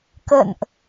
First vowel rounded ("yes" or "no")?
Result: no